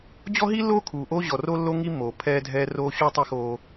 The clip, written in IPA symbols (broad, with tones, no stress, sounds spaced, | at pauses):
d͡ʑ ɔ˦ ɦ i˦ lː oː˦ kʰ uː˨ ʔ oː˦ ʑ ɔ˨ r o˦ lː o˦ ŋ i˦ mː oː˨ pʰ ɛː˦ dʱ ɛː˦ r oː˦ ɕ u˦ tˤ i˦ x oː˦